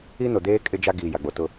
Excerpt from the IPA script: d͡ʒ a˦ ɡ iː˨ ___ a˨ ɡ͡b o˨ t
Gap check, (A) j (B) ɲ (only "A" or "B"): A